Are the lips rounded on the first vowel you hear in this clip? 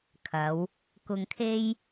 no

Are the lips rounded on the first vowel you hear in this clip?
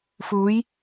yes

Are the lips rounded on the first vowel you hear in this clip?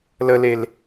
no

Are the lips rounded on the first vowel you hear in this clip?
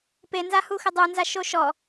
no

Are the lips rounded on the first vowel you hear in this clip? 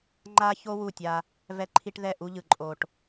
no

